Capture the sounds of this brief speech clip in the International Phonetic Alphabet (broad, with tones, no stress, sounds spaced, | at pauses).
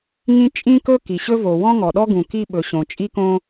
ŋ ĩ˥ t͡ʃʼ ĩ˥ k ɵ˥ k i˩ ɕ ɵ˥ v o˩ w ɔ̃˥ ŋ ɔ˩ ɗ ɔ˥ ɡ ũ˩ k i˥ ɓ ɵ˩ ɕ õ˩ t͡ʃʼ i˥ k õ˥